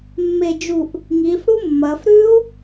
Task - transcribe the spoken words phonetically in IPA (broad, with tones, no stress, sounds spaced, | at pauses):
mː e˧˩ d͡ʒ u˧˩ ʔ | ŋ iː˩˧ f ɽ u˦˥ mː ɐː˩˧ f ɾ ʉ˦˥ u̯